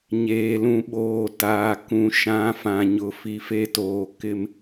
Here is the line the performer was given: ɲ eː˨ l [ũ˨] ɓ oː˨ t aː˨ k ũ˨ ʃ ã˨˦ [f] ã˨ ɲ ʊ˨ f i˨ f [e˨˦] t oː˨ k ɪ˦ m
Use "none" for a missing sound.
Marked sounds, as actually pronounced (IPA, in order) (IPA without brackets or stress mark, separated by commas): ũ˨, f, e˦